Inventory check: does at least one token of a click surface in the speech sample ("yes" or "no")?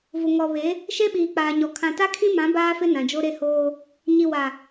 no